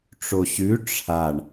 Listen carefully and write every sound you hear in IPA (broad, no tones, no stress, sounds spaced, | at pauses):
ʈ͡ʂ o ɕ ʉ ʈ͡ʂʰ a ɳ